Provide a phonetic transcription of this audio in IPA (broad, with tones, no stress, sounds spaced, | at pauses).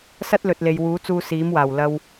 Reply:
s ɐ˥ t̚ l ɵ˨ t̚ l e˨ j w uː˨˥ t͡s uː˧ s iː˨˥ m w aː˨˩ w l ɐ˧ w